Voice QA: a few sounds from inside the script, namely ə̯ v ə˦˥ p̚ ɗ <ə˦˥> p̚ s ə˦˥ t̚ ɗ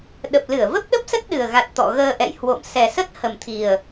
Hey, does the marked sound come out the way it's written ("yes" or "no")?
yes